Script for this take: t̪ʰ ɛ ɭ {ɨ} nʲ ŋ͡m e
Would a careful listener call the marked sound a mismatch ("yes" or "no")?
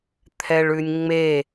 yes